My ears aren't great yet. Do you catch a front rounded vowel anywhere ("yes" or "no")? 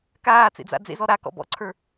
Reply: no